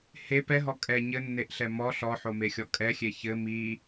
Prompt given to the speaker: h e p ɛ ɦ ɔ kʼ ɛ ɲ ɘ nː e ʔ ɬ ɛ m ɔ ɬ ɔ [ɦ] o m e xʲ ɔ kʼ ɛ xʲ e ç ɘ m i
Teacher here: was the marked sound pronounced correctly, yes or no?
no